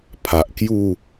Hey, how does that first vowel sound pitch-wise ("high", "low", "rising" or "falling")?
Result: low